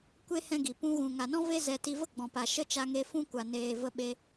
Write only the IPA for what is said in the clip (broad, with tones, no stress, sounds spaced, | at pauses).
kʷ e˦ h ɛ̃˦ ɡ i˨ p ũ˧ ɣ ũ˨ ŋ a˨ n ɔ̃˦ v e˦ z ɛ˧ t i˧ v ə˦ ɡ͡b ɔ̃˨ p a˨ ʃ ə˦ t͡ʃ a˧ ŋ e˧ f ũ˦ kʷ a˨ n eː˨ v ə˧ ɓ e˧